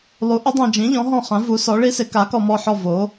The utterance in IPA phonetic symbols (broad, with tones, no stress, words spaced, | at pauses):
lˠu˩˥ʔɪ˩˥dˤã˨d͡ʒĩ˩˥ ʎɔ̃˩˥ɦɔ̃˦˨χã˩˥vu˩˥ sɔ˩˥ɭi˧˥sɪ˩˥ ka˩˥kɔ˨mɔ˦˨ħɔ˦˨ vo˩˥